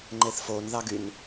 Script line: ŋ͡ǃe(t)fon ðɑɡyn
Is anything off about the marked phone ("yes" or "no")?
yes